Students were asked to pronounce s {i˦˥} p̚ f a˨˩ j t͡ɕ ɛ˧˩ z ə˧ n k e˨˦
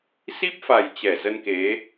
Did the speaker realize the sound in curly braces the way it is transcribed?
yes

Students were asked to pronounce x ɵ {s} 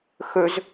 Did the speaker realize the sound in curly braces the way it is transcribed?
no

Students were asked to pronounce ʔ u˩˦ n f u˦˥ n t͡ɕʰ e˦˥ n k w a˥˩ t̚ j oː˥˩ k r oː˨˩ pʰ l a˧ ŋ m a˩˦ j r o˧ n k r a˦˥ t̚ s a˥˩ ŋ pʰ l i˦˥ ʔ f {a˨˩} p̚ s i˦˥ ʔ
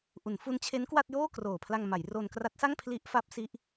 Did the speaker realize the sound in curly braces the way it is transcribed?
no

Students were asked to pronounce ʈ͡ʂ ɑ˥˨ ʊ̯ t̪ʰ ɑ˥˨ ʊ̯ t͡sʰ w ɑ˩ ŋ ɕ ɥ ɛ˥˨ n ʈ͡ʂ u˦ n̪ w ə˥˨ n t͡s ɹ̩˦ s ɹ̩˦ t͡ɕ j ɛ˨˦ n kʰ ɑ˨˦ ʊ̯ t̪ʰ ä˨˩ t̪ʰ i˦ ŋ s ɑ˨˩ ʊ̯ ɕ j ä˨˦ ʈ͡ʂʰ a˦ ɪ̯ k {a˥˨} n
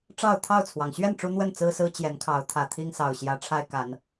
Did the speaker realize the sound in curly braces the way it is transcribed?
no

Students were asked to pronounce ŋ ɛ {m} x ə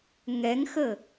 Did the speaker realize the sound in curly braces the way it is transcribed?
no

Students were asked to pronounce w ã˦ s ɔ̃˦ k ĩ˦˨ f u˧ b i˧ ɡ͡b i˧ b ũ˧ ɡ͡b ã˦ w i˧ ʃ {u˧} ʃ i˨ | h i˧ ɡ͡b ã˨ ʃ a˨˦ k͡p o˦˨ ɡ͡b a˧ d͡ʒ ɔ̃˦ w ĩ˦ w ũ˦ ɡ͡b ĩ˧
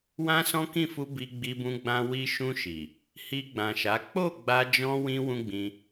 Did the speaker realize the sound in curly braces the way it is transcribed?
no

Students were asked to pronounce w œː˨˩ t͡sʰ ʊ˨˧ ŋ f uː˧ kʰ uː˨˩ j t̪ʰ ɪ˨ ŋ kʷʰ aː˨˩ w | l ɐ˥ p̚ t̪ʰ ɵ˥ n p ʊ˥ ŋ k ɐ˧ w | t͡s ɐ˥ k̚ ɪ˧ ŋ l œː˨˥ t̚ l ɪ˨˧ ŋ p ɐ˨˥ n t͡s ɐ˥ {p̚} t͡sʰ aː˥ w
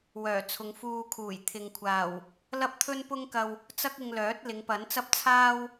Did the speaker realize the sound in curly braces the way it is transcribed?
yes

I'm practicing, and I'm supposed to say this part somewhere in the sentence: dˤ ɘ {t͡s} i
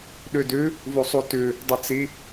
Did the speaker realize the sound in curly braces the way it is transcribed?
yes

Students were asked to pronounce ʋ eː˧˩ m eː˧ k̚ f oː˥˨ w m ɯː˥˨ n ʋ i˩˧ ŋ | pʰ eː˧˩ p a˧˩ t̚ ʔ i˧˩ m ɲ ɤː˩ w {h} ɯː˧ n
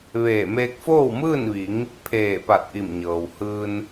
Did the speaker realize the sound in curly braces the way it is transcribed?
yes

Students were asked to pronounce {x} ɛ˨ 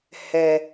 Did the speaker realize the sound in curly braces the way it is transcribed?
no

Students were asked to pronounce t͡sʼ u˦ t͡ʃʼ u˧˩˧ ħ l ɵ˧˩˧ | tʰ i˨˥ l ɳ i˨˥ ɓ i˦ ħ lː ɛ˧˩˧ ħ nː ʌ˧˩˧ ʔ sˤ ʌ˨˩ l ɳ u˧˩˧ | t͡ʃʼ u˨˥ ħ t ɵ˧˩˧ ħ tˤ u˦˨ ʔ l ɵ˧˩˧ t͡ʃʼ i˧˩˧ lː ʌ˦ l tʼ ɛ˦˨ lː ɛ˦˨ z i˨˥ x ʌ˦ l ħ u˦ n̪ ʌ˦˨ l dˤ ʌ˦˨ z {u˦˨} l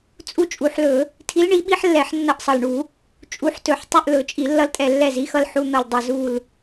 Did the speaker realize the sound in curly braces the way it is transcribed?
yes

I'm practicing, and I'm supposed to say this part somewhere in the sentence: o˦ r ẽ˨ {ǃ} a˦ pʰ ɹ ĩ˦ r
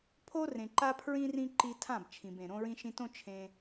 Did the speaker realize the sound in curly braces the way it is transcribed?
yes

